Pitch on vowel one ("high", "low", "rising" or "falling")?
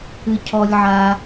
low